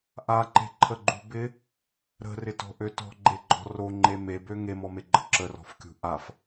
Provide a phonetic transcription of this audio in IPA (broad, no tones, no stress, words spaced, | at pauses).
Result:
ʔaǃe̤ǃʰəɡ͡ǃṳ bɪ | ɾə̤rɪtɔ̤ʔø tɔ̤ɡ͡ǃeɡ͡ǃɔ̤ roŋ͡ǃe mebø ŋemɔmeɡ͡ǃə ǁərɔ̤fkʲṳ ʔaf